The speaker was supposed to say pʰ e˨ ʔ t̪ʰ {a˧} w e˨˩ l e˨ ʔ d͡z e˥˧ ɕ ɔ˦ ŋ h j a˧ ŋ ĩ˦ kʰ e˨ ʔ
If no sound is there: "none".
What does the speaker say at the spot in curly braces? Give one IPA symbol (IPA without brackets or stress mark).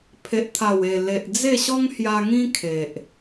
a˨˩